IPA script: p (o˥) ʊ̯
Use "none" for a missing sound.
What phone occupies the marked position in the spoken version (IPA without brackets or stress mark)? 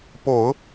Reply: o˨˩˦